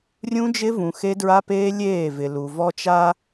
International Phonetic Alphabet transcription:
rʲ ũ˦ d͡ʒ ɪ˦ v ũ˨ x e˦ d ɹ a˦ p eː˦ lʲ eː˦˨ v ɪ˨ l u˨ v ɔ˦ t͡ʃ a˦

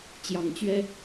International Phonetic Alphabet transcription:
t͡ɕ j ɑ˨˦ ŋ t͡ɕ ɥ ɛ˦

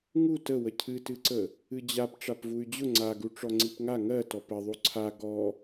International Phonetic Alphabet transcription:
ŋ u t ə w ə cʰ ɨ t ɨ ǀ ə | ɨ d͡ʑ a p ʈ͡ʂ a p v u y̯ d͡ʑ ʊ ŋ͡ǀ a ɡ u ʈ͡ʂ ɔ ŋ͡ǀ i p ŋ a ŋ ɜ t ɔ p ə ðˤ u ǀʰ a ɡ ɔ

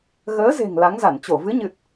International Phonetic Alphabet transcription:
ɣ əː˨˦ z e̤˨˩ ŋ l a˨˦ ŋ z a˧˩ n t͡ɕ o˧˩ v ɨ˨˦ ɲ ɨ˨˩ t̚

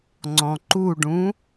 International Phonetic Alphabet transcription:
ŋ͡ǀ ɔ̃ ǃ u ɖ ũ

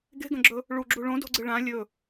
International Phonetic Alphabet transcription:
ɡ e̤ ɡ ɐ̃ ɡ͡ǁ ɵ | ɭ u ɡ͡ǁ u ɭ õ d o̤ ɡ͡ǀ ɨ ɭ ã lʲ ɵ

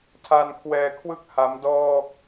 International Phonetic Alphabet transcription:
tʰ a˧ n kʰ w ɛː˧ kʰ w ɯ˥˩ k̚ h a˦˥ m d ɔː˥˩ k̚

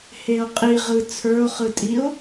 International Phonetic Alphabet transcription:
h e o̯ qʼ i ʁ ɯ t͡sʰ ə˞ o̯ χ ɯ tʼ i o̯

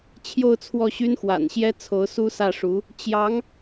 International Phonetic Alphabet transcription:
t͡ɕʰ j o˥˧ ʊ̯ t͡sʰ w ɔ˥˩ ɕ y˥ n x w a̰˨˩ n ɕ j ɛ˥ t͡sʰ o˧˥ ʊ̯ s u˥ s ä˥˩ ʂ u˧˥ | t͡ɕ j ɑ˧˥ ŋ

